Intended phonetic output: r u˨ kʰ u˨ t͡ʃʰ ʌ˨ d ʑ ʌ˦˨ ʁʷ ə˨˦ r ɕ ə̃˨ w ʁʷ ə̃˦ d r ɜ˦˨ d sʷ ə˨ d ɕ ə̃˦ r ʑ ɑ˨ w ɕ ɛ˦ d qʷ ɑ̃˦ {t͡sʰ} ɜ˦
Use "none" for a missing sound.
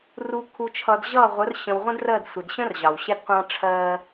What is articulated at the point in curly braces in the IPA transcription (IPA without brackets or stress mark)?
ʈ͡ʂʰ